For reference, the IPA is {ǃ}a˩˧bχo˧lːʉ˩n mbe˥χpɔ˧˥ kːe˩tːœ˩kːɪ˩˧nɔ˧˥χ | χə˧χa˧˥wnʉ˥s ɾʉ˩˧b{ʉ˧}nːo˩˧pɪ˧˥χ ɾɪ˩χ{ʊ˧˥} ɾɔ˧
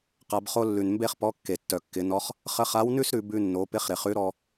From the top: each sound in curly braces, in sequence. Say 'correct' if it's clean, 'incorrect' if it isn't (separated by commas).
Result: incorrect, correct, incorrect